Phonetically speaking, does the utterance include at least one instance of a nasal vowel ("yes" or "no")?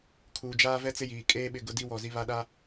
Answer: no